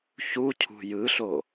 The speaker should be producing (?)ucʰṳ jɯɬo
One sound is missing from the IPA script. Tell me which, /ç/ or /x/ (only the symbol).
ç